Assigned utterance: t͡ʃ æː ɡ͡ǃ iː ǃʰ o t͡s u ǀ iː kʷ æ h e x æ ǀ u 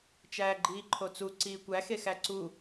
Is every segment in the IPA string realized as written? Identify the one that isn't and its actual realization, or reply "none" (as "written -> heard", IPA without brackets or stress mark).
h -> x